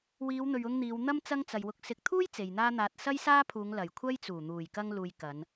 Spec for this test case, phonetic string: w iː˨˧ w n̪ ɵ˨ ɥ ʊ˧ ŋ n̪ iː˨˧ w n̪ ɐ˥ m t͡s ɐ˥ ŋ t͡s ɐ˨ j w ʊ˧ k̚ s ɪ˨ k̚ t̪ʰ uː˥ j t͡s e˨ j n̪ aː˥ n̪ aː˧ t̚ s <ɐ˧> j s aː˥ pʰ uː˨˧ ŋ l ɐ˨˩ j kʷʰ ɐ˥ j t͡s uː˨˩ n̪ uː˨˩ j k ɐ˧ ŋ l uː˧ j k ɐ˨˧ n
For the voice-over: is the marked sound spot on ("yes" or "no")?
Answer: no